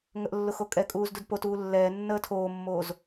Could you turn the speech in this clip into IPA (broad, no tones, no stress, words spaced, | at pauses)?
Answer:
ŋəʔlːʊ xokʼɛkʼuːz dudpotuː lːɛː nːəːtʰoːmːoːz